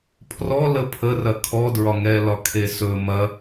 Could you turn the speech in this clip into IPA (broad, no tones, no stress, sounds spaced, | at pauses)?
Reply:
pʰ r ɔ l ə pʰ ə r ɐ kʰ ɔ d ɹ ɒ ŋ ɛ l ɒ kʰ e s ɵ m ɐ